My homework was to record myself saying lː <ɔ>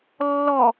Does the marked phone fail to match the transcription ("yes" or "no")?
no